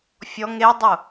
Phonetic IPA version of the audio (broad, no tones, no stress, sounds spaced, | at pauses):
fʲ ɔ ŋ e dˤ ʊ